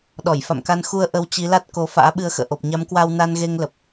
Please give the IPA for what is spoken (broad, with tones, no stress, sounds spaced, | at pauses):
ɗ ɔ˧˩ j f a̰˧˨ m k a˧ n x u˧ ə̯ ʔ ə˧ w t͡ɕ i˨˦ l a˦˥ t̚ k o˨˦ f a̰ː˧˥ ɓ ɨ˧ ə̯ x ə̰ː˧˨ ʔ o˨˩ p̚ ɲ a˨˦ m k w aː˧ w n a˧ n ɣ e˧ ŋ l ə˨˩ p̚